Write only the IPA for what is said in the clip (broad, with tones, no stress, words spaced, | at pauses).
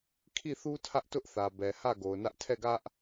kʰi˦˨θu˦ tʰä˦ʔtʊ˦ʔθä˨ bɛ˨hä˦˨ ɡo˨ʊ̯nä˦ʔ tʰɛ˦˨ɡä˦ʔ